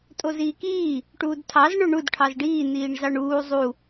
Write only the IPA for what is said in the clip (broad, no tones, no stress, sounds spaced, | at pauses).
tʼ o z iː k iː | ʈ uː d tʰ ɑ z ɳ o ɳ u d ʈʰ ɑ z ɖ iː n̪ iː ɳ z ɑ ɳ uː zˤ u